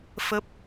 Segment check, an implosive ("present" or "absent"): absent